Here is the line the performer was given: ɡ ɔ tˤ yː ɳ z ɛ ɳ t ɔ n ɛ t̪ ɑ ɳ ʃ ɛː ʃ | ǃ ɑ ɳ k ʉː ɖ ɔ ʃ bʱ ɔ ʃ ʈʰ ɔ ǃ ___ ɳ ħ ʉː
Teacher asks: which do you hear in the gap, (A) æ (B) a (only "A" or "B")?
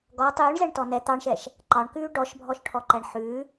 A